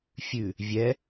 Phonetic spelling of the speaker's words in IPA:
fʲ ʉ | vʲ ɛ

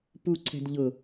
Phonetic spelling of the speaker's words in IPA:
p u ǀʰ ɛ̤ d ʎ ʊ

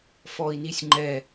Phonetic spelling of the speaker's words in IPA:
f ɔ i̯ n i sʲ ŋ͡ǃ ɛ

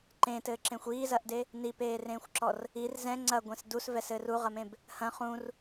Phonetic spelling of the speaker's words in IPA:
ǃ ẽ t ɘː ǁ ẽ xʷ iː z ɐ ʔ d e | n i p eː r ẽː xʷ ǁ ɔ r | i r z ɛ̃ ŋ͡ǀ ɐ ɡʷ ẽ s d u s v ɛ s ɘː r u ʁ ɐ m ẽ b | h ɐ̃ χ ũ r

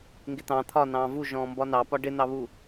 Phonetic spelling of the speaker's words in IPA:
ŋ ɡ ɪ t̪ ɑ̃ t̪ʰ ɒ n ɑ̃ː v u ʒ ɔ̃ː m b ɒ n ɑ p ɒ ɖ ɪ n̪ ɑ β u

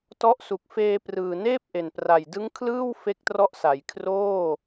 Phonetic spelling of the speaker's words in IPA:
t ɔ˦˥ ʔ s u˨˩ k̚ f eː˧ p r ɯː˨˩ n eː˥˩ p̚ ʔ e˨˩ n p r a˨˩ j d ɯ˦˥ ŋ kʰ l ɯː˥˩ w f e˦˥ k̚ t r ɔ˦˥ ʔ s a˩˦ j kʰ r oː˥˩

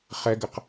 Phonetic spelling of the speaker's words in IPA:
χ ɛ ɡ ɜ q

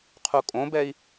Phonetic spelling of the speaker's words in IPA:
qʰ u kʼ õ b ɛ i̯

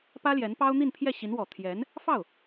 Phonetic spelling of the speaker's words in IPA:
p ä˥ l j ɛ˧˥ n p ɑ˥ ʊ̯ n̪ i˥˧ n pʰ j ɛ˥˩ ɕ i˧˥ n w ɔ˨˩ t̪ʰ j ɛ˧˥ n | f ɑ˥˩ ʊ̯

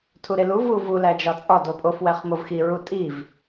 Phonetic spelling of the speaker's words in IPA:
tʰ u ɾ e l u v u v u l æ d͡ʒ ɒ t͡sʼ ɒ d o pʼ o f w æ χ m o v x i ɹ u tʼ i v

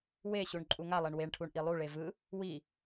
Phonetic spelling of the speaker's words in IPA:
w e ɕ u ɳ ǃʼ u ŋ a lˠ e ɳ w e ɳ ʈʰ u ɳ ʔ i lˠ u ɭ e v ɯ | w i

